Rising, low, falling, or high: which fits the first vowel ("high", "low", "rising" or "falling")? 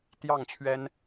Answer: falling